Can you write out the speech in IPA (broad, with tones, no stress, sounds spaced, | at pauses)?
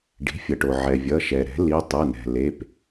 ɖ i̤˩˥ fʲ ʌ˩ ʈ o˩ ʕ ɛ˩ vʲ ʌ˩˧˩ ʃ ɛ˩ ɾ ɛ̤˩˥ l i˩˧˩ tˤ ɯ˩˧˩ n ɛ̤˩ l e˩˧˩ p